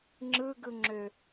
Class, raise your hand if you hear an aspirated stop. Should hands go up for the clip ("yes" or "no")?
no